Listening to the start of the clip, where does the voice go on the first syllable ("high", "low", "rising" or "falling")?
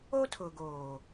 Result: high